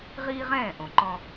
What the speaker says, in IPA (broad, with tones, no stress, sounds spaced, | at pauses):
ʁ iː˦ ʁ ɛ̃ː˦˨ ʔ õ˨ ǃ ɔ̃˦